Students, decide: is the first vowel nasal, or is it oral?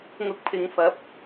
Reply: oral